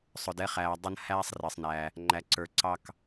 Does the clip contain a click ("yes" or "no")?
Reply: yes